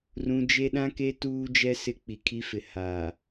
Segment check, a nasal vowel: present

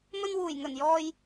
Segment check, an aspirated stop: absent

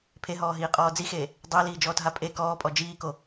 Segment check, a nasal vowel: absent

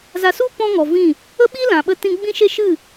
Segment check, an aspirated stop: absent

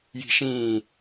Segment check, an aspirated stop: absent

